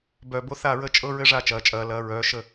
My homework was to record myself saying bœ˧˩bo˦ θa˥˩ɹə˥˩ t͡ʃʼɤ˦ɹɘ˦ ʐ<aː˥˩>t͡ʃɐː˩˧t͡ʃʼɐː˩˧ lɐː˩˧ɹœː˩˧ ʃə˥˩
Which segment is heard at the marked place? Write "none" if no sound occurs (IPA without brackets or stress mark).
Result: aː˥˩